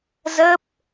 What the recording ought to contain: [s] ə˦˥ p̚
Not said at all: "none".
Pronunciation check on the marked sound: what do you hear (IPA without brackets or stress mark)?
z